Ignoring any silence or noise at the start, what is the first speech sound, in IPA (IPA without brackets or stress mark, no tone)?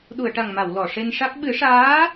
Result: ɗ